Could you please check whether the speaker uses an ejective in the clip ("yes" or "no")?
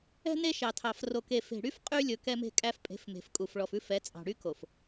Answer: yes